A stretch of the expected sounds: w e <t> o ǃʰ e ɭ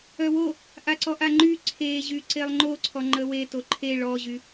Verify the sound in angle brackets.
correct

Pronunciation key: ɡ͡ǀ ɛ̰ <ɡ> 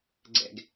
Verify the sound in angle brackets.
correct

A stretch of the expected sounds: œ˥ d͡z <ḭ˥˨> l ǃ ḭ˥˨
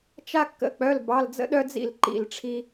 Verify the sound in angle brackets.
correct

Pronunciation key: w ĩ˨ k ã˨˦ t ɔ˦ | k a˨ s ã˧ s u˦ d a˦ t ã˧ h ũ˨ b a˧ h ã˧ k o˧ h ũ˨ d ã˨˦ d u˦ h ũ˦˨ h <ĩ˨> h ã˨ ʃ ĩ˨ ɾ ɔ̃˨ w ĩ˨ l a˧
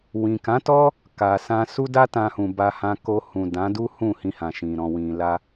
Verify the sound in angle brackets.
incorrect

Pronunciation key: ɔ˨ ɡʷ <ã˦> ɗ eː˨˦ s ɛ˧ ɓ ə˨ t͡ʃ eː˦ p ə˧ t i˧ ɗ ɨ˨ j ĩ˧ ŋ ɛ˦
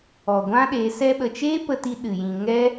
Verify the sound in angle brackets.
correct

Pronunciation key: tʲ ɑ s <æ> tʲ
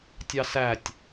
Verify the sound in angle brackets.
correct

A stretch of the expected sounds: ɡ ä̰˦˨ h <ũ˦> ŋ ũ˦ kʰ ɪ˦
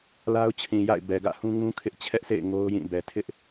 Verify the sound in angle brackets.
correct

